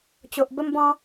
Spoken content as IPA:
t͡ɕo˨ʔbə˦mbɔ̃˦

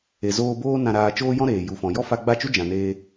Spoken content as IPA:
e˨zoː˧boː˦ nã˧ɾaː˧ t͡ʃoː˦jɔ̃˦ɾeː˨ ju˨ fɔ̃˨jɔ˦ fa˧ɡ͡ba˦˨t͡ʃu˦ d͡ʒã˨neː˧

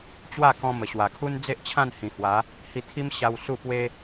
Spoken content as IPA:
t͡ɕwa˥˧kɔ̃˧ mə˨˩ɕwa˨˩kʰu˦n d͡ze˦ʔt͡ɕʰã˥˧n hĩ˨˩hwa˨˦ | hi˧t̪ʰi˦m ɕa˧w su˥˧pwe˦

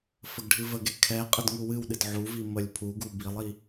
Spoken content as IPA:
fəɡɖʱɨvəɡe kʰɛ qʼədŋuwɨwɗɨd ʕuvi məlʲpʰuɡu bilˠi

